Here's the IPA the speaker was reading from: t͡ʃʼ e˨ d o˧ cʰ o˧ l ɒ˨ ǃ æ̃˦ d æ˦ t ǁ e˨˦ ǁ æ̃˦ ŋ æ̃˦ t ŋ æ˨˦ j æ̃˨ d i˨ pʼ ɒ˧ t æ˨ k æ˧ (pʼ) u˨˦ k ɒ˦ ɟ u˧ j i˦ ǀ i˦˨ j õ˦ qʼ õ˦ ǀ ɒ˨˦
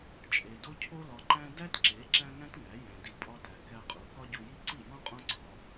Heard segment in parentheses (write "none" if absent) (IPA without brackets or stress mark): qʼ